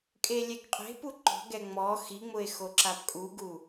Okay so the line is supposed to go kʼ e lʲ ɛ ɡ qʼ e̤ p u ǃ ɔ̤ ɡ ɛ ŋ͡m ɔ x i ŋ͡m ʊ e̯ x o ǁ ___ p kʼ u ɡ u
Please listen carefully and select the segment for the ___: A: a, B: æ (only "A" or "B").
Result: A